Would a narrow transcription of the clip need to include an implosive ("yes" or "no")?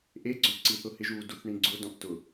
no